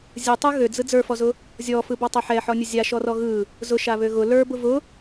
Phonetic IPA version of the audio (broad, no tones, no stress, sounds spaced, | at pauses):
zʲ ɯ tˤ ɯ ɣ ø d͡z ɯ d͡z ə˞ f ɔ z ʊ | zʲ ɔ f ɯ b ɔ tˤ a ħ ɛ ħ ɔ nʲ ʊ zʲ a ʃ ɔ r ɔ ɣ ɯ | z ʊ ʃ a β ø ɣ ʊ l ə˞ b ʊ v ʊ